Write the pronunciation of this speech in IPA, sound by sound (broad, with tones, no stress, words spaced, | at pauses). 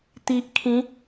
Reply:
t̪i˨ʔ kʰĩ˨˦